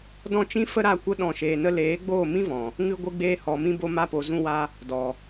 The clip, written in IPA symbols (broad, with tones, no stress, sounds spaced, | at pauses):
d ɔ̃˦˨ t͡ʃ ĩ˦ f ə˦ ɾ a˦˨ kʷ ə˧ ɗ ɔ̃˦˨ ʃ eː˧ n ə˦ l eː˨˦ ɡ͡b oː˦˨ m ĩ˦ v ɔ̃˨ | ŋ ɨ˦ ɡʷ ɨ˧ ɡ͡b eː˧ h ɔ˨ m ĩ˧ b o˧ m a˧ p o˨ z ũ˧ w a˧ | d ɔ˨